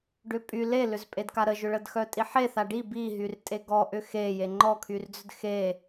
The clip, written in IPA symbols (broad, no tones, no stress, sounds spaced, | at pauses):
ɖ ʏ pʼ y l e l ʏ z pʼ e d k a ɾ ə ʒ ʏ ɭ ə d x œ tʼ i ħ e θ a ɖ i b i ɦ y r tʼ e ɡ ɔ ʔ ʏ x e j e ŋ͡ǃ ɔ kʰ y r d͡z ʏ d x e